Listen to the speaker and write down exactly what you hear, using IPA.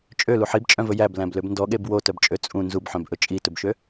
t͡ʃʼ ø l u ħ i b t͡ʃʼ œ̃ v ɵ j æ b l æ̃ b l ø b n d ɔ ɠ e b w o t œ b t͡ʃʼ ø t͡sʼ ũ n z u b ħ œ̃ b ʔ ɵ t͡ʃʼ i t ɵ b ʃ ø

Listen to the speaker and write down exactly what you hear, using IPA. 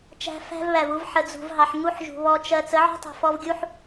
t͡ʃ æ̤˧ f æ̤˦ v β æ˨ v u˧ v ħ ə˧ d͡z ṳ˧ v ɦ ɑ˧ ħ ŋ u˧ ħ ʒ ṳ˨ β ɔ˧ t͡ʃ ɜ˧ t͡s ə˨˦ ʕ ɔ̤˦ tˤ ṳ˨ f ɔ˧ v ɡʲ u˦ ħ

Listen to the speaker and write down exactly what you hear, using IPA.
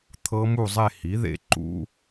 t̪ʰ ɤ˦˥ m u˥˧ zˤ e˥˧ h i˩˥ ð ḛ˦˥ ǃ ṵ˦˥

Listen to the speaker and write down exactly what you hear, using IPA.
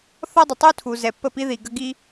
θ ɔ˦ dˤ ə˨ tˤ u˦ tʰ u˨ z ɛ˨ pː ə˦˨ p i˦ ð i˨ ɡ ə˦ ɡ i˦

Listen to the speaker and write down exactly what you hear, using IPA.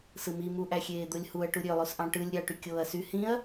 s ɯ m i m u ʔ æ xʲ eː d̪ o lʲ h u ɐ̯ ʈ u ɾʲ ø lˠ o s ʔ ɑ̃ ʈ ɯ lʲ ɾʲ ɑ ʈ y kʲ oː ɐ̯ s y h ĩ ɐ̯

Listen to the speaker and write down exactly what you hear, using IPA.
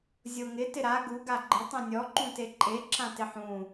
zʲ o ŋ ɪ t ɪ ɾ a ɡ u ɡ a ɡ͡ǃ ɪ tˤ ẽ nʲ ɔ ǃ ũ t e ǃʼ e ǁ ã t ɪ ħ ũ

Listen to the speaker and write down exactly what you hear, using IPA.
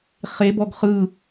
χ e b ɔ ɡ χ ɯ

